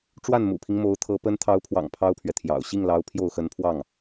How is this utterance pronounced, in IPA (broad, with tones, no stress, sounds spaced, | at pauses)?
ʈ͡ʂ w a˥˩ n m ṵ˨˩ pʰ i˦ ŋ m o˧˥ ʊ̯ t̪ʰ ɤ˧˥ p ə˧˥ n t̪ʰ ɑ˧˥ ʊ̯ pʰ w ɑ̰˨˩ ŋ pʰ ɑ˥ ʊ̯ pʰ ɥ ɛ˨ t̪ʰ j ɑ̰˨˩ ʊ̯ ɕ i˥˩ ŋ l ɑ˧˥ ʊ̯ pʰ j o˥˩ ʊ̯ x ə˧˥ n pʰ w ɑ˥˩ ŋ